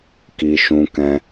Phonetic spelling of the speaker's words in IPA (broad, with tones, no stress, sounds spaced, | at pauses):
k i˧ ʃ ũ˧ k ɛ̃˧